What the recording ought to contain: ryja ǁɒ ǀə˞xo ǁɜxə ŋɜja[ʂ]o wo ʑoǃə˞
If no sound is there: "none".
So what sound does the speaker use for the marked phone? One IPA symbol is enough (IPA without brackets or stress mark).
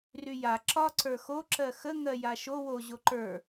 ʃ